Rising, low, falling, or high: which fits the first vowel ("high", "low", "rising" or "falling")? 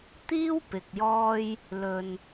high